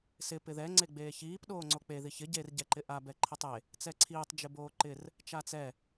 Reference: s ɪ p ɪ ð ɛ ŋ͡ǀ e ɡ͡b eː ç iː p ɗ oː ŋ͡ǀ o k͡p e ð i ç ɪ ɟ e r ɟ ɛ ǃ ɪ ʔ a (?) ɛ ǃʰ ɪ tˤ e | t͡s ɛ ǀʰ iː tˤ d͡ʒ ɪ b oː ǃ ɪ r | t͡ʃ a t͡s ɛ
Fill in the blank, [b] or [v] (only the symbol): b